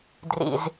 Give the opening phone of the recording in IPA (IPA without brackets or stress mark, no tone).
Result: d